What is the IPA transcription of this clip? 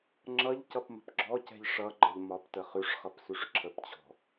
ŋ͡ǁ ʌ ʎ c ʌ p m ə̤ p ɡ͡ǁ ɔ c ɛ̤ ʎ ʂ ʌ ɡ͡ǃ ʌ ʎ m ɒ p t ə χ ʉ ʂ χ ʌ p s ʉ ʂ ǁʰ ə p t͡ɕʰ ɔ̤

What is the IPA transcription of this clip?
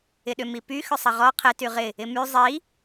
ɪ ɗ ʏ m i p y x ʏ sˤ ɐ ʁ ɔ qʰ ɪ t y ʁ ɪ | ɪ m y zˤ i

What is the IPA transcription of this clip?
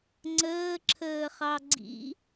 ŋ͡ǀ əː ǁʰ əː χ ɑ ɡ͡ǀ ḭ

